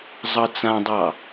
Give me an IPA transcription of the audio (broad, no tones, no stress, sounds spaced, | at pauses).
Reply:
zˤ ʌ t͡s ã dˤ ɑ